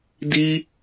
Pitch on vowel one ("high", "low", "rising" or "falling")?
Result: high